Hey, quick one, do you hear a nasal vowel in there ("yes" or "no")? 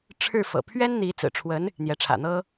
no